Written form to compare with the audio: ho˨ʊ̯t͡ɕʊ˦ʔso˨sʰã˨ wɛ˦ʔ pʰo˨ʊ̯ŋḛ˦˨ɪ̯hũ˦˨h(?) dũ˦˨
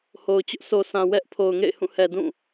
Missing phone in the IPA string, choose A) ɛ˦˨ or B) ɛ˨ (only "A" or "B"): B